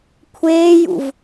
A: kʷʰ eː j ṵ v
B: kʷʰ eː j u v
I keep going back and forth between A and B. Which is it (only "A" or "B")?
A